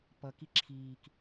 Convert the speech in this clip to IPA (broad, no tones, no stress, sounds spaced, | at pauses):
p ʌ k i ǁʰ iː k